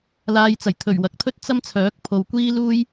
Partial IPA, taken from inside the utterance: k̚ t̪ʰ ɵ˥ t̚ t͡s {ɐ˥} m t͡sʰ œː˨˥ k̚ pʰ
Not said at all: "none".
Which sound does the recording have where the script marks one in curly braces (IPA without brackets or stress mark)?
ɐ˥